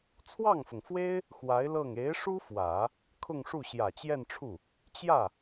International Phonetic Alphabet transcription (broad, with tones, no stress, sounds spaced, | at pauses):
t͡sʰ w ɑ˥˩ ŋ f ʊ˩ ŋ f w e˥ ɪ̯ | x w a˧˥ ɪ̯ l ɤ˥˩ ŋ e˧˥ ɪ̯ ʂ u˥ f w ä˨˩˦ | kʰ ʊ˥˧ ŋ ʂ u˥˩ ɕ j ä˨˩ t͡ɕ j ɛ˥˧ n ʈ͡ʂʰ u˥˩ | t͡ɕ j ä˥˩